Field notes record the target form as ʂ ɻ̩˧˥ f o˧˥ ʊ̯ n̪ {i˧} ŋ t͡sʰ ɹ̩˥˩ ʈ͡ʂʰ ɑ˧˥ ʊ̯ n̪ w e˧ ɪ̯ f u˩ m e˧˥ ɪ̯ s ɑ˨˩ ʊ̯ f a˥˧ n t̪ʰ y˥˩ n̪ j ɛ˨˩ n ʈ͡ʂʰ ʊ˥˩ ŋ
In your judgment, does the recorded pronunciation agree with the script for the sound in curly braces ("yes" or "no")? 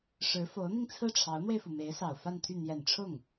yes